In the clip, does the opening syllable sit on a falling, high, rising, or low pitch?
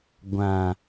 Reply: low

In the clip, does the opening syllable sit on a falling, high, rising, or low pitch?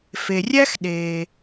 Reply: low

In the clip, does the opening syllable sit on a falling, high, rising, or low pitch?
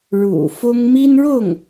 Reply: low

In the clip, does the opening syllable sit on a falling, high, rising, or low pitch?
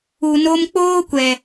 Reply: low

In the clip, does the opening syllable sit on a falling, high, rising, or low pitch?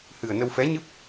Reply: low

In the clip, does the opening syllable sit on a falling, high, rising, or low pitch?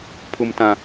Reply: high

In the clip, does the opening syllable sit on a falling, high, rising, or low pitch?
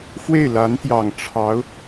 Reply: falling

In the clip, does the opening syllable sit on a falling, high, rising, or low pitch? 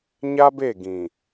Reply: high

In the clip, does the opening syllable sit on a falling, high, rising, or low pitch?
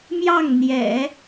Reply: falling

